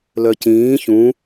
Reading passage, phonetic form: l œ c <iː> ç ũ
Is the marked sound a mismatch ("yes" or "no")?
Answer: yes